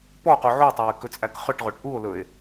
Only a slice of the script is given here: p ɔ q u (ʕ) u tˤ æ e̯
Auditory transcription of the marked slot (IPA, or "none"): ʕ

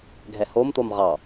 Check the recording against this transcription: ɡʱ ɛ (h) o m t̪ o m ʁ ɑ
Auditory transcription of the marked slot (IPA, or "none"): h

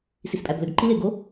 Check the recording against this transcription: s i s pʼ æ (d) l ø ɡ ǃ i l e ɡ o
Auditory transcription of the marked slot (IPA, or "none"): b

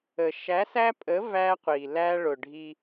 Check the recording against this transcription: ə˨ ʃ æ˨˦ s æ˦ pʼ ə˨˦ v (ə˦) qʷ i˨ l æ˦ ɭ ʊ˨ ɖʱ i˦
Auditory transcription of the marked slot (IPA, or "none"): æ˦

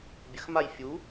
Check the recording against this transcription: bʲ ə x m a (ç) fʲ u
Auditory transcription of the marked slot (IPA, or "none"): j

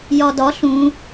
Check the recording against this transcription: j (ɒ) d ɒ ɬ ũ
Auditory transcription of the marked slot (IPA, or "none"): ɒ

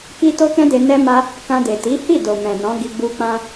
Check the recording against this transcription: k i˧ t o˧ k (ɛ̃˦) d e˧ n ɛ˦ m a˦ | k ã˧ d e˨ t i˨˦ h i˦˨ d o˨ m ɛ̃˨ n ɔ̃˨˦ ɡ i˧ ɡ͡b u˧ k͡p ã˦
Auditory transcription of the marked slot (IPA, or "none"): ɛ̃˦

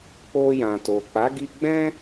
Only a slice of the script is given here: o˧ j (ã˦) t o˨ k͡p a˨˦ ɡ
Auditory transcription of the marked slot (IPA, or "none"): ã˨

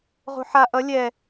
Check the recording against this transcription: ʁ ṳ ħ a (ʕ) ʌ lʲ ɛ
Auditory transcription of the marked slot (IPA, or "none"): ʔ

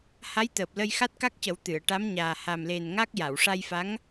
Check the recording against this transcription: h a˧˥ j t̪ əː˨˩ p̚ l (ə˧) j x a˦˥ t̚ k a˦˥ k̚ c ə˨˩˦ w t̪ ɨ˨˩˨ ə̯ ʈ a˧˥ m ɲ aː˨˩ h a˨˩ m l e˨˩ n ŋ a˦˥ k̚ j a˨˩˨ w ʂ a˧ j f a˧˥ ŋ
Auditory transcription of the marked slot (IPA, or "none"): ə˧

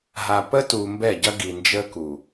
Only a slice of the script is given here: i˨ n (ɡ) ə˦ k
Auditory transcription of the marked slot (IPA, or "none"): d͡ʒ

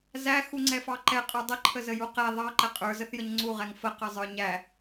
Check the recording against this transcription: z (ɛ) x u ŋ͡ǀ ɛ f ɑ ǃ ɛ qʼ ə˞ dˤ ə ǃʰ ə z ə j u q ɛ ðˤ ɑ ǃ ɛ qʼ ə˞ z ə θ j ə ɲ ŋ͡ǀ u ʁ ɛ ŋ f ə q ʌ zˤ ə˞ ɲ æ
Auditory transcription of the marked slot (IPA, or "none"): æ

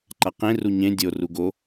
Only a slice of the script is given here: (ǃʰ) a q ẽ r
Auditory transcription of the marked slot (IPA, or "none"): ǃ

